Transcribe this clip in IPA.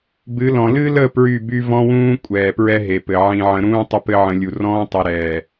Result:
b ɨ˨˦ l ɔ̃˨ l ɨ˦ l ə˦˨ p ɹ y˦˨ b y˦ v ɔ̃˦ w ũː˦ kʷʼ ɛː˨ p ɹ ɛ˦ ɦ e˨ p ɘ˨ ʕ ĩ˨ ʕ ə̃˨ ɾ ũː˦ tˤ ʊ˦ p ɘ˦ ʕ ə̃˨˦ lʲ u˨ r ɔ̃ː˦ tˤ i˨ ɾ ɛː˨

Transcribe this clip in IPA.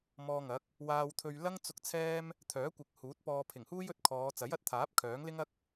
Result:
m ɔː˧ ŋ ɐ˨˥ k̚ | w aː˧ w t̪ʰ ɵ˧ ɥ l ɐ˥ ŋ t͡s ʊ˧ k̚ t͡sʰ ɛː˥ m | t̪ʰ œː˨˥ kʷ ɪ˨˥ k̚ h uː˨˥ t̚ p ɔː˧ pʰ ɪ˨˩ ŋ h uː˥ j ɵ˧ t̚ kʰ ɔː˨˧ t͡s ɐ˨˥ j ɐ˨˥ t̚ t̪ʰ aː˨˥ p̚ kʰ œː˨˥ ŋ l ɪ˥ ŋ ɐ˥ k̚

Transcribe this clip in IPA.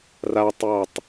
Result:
r a tˤ j ɑ tˤ

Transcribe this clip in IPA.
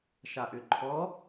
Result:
ʃ a ʔ ʏ ǃʰ ɔ

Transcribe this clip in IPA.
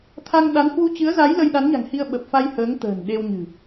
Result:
t̪ʰ a˧ ŋ ɗ a˨˦ n h w u˧ t͡ɕ ɨ˨˦ ə̯ z a˨˦ j l ə˧ j ɗ a˨˦ n ɲ a̤˨˩ ŋ h i˧ ə̯ ɓ ə˨˩ p̚ f a˧ j h əː˨˦ ŋ t̪ ə̤ː˨˩ n ɗ e˧ w ɲ ɨ̤˨˩

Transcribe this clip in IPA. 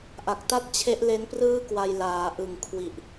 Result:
ʔ a˨˩ k̚ t a˥˩ t̚ t͡ɕʰ e˦˥ ʔ l e˦˥ n p r ɯː˥˩ k w a˧ j l aː˩˦ ʔ ɯ˨˩ ŋ kʰ w i˨˩ ʔ

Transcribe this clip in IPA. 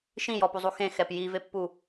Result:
ʃ ĩ j ɔ p u zˤ u x ẽ x ɛ p j i v e pː u

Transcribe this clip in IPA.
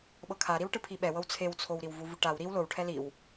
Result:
ɓ ɤ kʰ a ɾ i w ʈ ɯ pʰ i ɓ ɛ w ɤ w t͡sʰ e w t͡sʰ o w ɾ i w v u v u ʈ a w ɾ i w l o w ʈʰ ɛ l i w

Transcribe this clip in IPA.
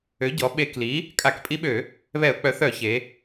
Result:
ø˩˥ ɟ ɔ˩˧ ɓ e˧˩˧ k l i˩˥ | kʼ a˧˩˧ k pʼ i˧˥ ɓ ø˧˩˧ | β ɛ˧˩˧ ʊ̯ k͡p œ˩˥ θ œ˧˩˧ ç e˩˧

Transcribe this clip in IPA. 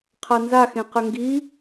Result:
qʰ a n z a x ẽ q ə ŋ ɡ i

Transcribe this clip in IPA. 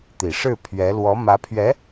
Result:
t̪ i˨˩ ʂ ɻ̩˥˩ pʰ ɥ ɛ˧˥ l w ɔ˧˥ m ä˧˥ pʰ ɥ ɛ˧˥

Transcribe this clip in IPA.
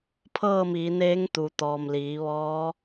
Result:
pʰ ɤː˥˨ m iː˩˧ n eː˧˥ ŋ t̪ u˩ t̪ ɔː˩ m l iː˩˧ ʋ ɔː˧˥

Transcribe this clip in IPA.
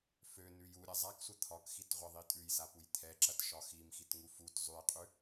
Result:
f ø n ʉ j u ɾʲ ɐ zˤ a k sʷ ə t̪ʰ ɒ k x i t ʁʷ ɐ ðˤ i tʼ ʉ j s a p u j t̪ʰ ɛ ǁ ɐ t ʃ ɒ x i m x i t ŋ u f u t zˤ ʉ j qʼ ʉ

